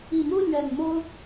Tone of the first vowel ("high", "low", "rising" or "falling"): low